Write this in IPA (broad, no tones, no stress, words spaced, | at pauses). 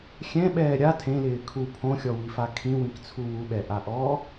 xʲɛ̃ɓɛː ɾʲa tʰẽlɪː kʰu pʰõxʲɔwifa kʰĩwĩkt͡sʰu wuɓɛʔaʔɔː